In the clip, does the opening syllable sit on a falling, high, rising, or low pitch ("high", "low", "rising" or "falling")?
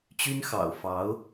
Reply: high